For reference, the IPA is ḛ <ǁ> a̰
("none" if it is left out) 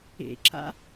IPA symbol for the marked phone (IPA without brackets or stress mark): ǁ